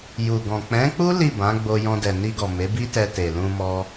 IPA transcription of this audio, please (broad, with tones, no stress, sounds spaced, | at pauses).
j u˨ ɡ ɔ̃˨ k͡p ɛ̃˨˦ k͡p u˦ l i˦˨ b ã˨˦ ɡ͡b o˧ j ɔ̃˧ d ɛ˨ n i˧ ɡ ɔ˨ m e˨˦ b i˦ t ɛ˧ t e˨ l ũ˧ m ɔ˧